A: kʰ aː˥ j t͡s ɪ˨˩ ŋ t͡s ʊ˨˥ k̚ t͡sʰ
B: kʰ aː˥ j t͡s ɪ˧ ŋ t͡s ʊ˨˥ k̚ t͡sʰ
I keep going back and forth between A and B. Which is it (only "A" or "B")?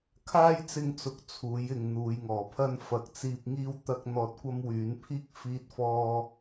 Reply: B